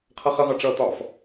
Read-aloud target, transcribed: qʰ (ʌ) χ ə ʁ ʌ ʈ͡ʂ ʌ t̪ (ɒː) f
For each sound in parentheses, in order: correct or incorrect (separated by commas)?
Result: correct, correct